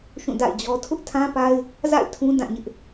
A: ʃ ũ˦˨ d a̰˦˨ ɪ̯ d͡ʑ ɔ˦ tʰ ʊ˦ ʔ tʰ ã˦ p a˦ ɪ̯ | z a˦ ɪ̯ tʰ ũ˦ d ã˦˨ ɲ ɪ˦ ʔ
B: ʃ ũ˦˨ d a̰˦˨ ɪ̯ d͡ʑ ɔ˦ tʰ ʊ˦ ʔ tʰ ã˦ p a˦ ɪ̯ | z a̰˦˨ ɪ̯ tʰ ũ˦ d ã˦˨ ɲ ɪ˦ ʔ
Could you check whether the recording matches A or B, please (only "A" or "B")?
B